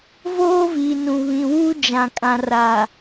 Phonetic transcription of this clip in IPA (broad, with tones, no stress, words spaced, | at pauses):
voː˦viː˨nũ˨ βĩ˨wuː˦d͡ʒã˨kʼã˨ ra˨